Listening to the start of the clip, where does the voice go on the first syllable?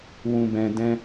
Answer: low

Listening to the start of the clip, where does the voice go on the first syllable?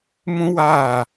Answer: high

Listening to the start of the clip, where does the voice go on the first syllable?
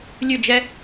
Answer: falling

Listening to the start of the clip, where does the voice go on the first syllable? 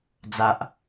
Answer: high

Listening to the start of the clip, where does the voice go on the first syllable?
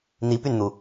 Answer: rising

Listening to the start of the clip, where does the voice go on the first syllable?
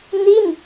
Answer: falling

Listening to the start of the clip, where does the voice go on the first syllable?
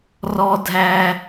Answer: high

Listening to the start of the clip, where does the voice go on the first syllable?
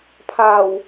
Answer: low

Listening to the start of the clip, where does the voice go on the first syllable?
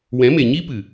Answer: rising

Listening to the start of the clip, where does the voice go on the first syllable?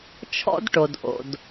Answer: high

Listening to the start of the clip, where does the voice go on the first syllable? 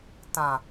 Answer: low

